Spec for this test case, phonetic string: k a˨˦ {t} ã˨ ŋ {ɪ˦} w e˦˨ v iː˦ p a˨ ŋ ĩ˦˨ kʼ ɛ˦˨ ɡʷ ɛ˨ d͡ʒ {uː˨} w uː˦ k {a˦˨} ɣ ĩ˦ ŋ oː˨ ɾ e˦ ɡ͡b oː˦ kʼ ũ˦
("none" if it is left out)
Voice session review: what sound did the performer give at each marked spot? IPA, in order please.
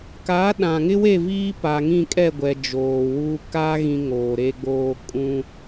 ɗ, ɪ˦, oː˨, a˦

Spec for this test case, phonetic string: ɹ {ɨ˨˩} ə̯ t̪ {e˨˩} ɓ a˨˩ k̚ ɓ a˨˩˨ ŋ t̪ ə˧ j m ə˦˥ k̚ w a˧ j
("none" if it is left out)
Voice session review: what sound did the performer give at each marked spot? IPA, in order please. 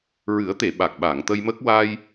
ɨ˨˩˦, e˨˩˨

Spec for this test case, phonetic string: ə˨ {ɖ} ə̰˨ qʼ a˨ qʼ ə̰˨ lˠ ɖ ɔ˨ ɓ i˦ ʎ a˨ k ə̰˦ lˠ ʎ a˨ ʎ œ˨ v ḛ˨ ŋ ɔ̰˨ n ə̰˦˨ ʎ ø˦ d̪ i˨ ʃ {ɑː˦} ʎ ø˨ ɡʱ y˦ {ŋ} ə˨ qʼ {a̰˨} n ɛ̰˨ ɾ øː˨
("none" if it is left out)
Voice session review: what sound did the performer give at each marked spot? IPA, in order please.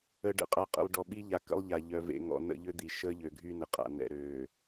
ɖ, əː˦, n, a̰˨

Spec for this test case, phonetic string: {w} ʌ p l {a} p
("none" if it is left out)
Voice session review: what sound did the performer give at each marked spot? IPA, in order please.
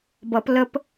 b, ə

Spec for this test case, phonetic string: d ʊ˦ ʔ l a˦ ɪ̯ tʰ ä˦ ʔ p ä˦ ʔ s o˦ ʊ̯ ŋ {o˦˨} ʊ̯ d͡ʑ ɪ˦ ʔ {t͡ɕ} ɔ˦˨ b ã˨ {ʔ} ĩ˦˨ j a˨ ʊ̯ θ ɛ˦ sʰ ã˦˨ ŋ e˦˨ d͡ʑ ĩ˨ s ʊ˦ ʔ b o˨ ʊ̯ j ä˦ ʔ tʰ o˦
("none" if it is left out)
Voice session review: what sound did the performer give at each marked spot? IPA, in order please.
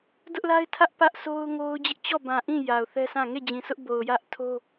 o˦, t͡ɕ, ʔ

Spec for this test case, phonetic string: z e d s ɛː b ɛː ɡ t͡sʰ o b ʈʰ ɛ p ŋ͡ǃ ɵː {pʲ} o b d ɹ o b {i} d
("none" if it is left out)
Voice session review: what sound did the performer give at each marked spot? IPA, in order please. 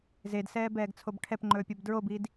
pʲ, i

